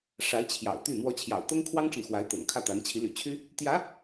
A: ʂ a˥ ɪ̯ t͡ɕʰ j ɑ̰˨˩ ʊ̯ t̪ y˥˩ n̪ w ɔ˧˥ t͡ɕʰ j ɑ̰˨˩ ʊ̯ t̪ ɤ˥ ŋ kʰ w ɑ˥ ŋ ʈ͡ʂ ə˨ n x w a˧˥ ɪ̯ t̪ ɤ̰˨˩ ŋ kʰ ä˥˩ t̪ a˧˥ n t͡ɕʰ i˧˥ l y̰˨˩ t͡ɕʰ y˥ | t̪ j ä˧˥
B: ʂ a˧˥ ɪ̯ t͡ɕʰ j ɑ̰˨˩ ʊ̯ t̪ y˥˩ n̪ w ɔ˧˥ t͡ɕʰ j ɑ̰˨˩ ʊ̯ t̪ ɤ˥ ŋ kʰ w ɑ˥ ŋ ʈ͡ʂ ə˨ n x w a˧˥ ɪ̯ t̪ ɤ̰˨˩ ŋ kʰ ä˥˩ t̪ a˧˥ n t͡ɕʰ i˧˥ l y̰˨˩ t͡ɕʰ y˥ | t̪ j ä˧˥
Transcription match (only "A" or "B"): B